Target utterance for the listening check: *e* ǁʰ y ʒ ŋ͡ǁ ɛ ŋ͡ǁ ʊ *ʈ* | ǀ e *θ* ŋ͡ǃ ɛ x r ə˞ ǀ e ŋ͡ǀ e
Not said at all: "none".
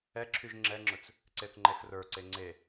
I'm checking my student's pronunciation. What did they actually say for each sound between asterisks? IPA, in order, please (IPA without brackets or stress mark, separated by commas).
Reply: ɛ, t͡s, θ